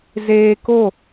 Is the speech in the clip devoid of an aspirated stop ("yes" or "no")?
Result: yes